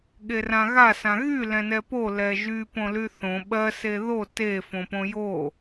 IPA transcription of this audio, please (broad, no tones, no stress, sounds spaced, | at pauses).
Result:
ɠ e r ã ɣ a s ã ɣ y l ɛ̃ n ɛ p o l ɛ ʒ y p õ l y θ õ ɓ ɜ s e ð o t e f õ p õ j o